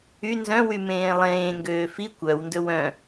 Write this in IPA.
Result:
y n z œ̃ w y m ẽː lˠ ẽː ŋ ɡ øː f i kʷ œ w n d ɵ w œ̃

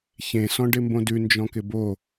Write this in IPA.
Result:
ç ẽ s ɔ̃ ɖ ɪ m b õ d ʉ n d͡ʒ ɔ̃ k ɪ b o

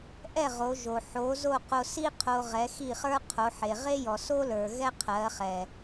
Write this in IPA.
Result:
ʔ ɛ˥˩ ʁ o˩˥ ʒ o˩ ħ o˩˥ z o˥˩ q o˧ s i˥ qʰ o˧ ʁ ɛ˩˥ x i˥˩ χ ə˞˥ qʰ o˩˥ ħ e˩ ʁ e˥ j ɔ˩ s o˥ l ə˞˩ ɣ ɛ˥ qʰ ɜ˩˥ χ ɛ˩

